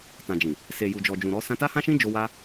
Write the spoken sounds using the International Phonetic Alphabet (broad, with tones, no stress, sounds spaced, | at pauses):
t ã˨ d͡ʒ ĩ˨ | s e˨ j u˨ d͡ʒ ɔ˨ d͡ʒ ũ˨ ɾ ɔ˨˦ s ã˧ t a˦ h ã˦ ʃ ĩ˦ d͡ʒ o˧ w a˦